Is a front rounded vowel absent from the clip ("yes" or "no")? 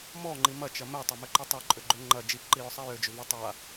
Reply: no